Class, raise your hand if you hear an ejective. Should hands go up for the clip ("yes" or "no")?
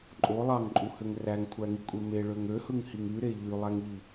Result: yes